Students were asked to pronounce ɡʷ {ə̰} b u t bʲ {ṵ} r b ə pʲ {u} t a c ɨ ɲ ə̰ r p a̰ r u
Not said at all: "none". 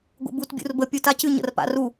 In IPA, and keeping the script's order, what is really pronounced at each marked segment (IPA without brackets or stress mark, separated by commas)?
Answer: ə̰, ṵ, u